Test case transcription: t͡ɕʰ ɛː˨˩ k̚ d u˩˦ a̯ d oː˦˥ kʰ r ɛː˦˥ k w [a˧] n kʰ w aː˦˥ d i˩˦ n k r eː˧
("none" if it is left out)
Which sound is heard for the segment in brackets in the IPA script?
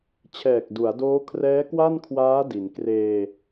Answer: a˥˩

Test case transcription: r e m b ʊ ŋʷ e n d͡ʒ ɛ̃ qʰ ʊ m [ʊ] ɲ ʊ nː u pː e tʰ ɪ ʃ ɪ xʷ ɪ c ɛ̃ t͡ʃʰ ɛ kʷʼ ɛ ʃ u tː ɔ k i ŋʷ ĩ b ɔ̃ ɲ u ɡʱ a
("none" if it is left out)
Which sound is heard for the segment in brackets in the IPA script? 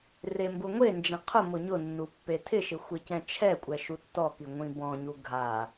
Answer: ʊ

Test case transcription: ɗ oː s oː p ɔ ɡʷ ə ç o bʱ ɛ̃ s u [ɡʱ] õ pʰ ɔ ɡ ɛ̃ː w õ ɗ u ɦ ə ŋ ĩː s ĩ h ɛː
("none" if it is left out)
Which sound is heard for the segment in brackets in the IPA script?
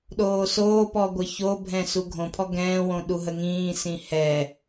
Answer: ɡʱ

